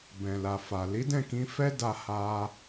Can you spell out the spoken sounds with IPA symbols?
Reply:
b ɛ̃˨ l a˨ f a˨ l i˨˦ d ɛ̃˦˨ k ĩ˧ f ɛ˦ d a˧ h a˧

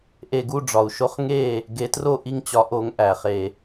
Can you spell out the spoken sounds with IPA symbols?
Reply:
ʔ e˧˩˧ ɡ u˥˩ ɖ͡ʐ ɒ˩ u̯ ʃ o˦ χ ŋ e˥˩ | ɡ e˨˦ t r o˥˩ ʔ i˥˩ ŋ t͡ɕ ɒ˨˦ ʔ o˨˦ ŋ ʔ æ˩ χ e˧˩˧

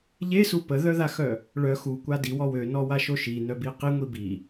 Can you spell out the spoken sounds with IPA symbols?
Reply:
ʎ e s u p ə ð œ ð a x œ | ɭ œ x u kʷ a d i w ɔ w ø n ɔ w a ʃ o ʃ i n œ b i q i ŋʷ i b i

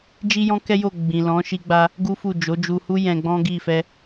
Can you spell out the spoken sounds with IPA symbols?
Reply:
d͡ʒ i˦ j ɔ̃˦ k ɛ˦ j o˦˨ ɡ͡b ĩ˨ l ɔ̃˨˦ ʃ i˧ ɡ͡b a˧ | ɡ u˦ f u˦˨ d͡ʒ o˨˦ d͡ʒ u˧ h u˦ j ɛ̃˧ ɡ͡b ɔ̃˦ ɡ i˦˨ f ɛ˧

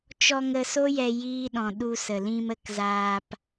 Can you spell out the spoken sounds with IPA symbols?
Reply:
t͡ʃ ɔ˧ ŋ ə˧ s o˦ j ɛ˧ j iː˦ ɗ ɔ̃˧ ɗ u˧ s ə˨ l ĩ˧ m ə˦˨ k z aː˧ p

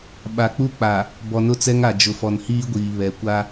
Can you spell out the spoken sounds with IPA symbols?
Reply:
ɓ a˨ k͡p u˦ k͡p a˨ | b ɔ˨ n ʊ˦ t͡s ɛ˦ ŋ a˨ d͡ʒ ʊ˨ f ɔ˨ n h iː˦ ɡʷ iː˨ β ɛ˨ kʷ a˦

